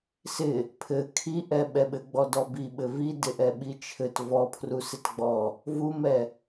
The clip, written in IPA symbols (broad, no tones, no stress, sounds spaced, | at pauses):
s ɪ | pʰ ɘ kʰ i ʔ ɛ ɓ ɛ ɓ ɘ ɡ͡b ɔ d ɔ b i ɓ ɘ v i d ɪ ʔ ɛ ɓ i t͡ʃʰ ɘ t v ɔ pʰ r u s ɪ t ɡ͡b ɔ | v u m ɛ